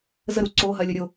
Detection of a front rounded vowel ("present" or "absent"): absent